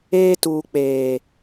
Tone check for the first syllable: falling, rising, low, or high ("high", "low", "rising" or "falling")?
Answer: high